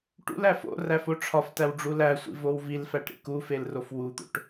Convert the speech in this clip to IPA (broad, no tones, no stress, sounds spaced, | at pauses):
ʈ ṵ l æ f o̰ r æ f o ʈ͡ʂʰ ɒ f t æ w ɖ͡ʐ u l æ sʷ ḭ v o w v i l f æ ʈ ɾ ḭ k u f e l r o f w u t̪ o̰ ʈ